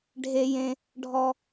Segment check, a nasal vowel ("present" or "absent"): present